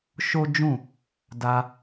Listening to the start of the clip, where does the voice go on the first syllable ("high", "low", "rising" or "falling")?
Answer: high